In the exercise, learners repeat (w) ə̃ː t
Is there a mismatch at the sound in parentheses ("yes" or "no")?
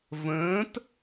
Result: yes